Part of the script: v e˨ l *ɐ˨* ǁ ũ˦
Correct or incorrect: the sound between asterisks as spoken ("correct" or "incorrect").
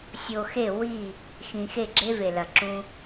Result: correct